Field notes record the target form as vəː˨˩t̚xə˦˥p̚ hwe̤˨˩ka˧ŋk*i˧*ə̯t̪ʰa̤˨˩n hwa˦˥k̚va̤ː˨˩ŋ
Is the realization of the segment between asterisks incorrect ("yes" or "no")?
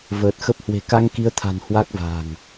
yes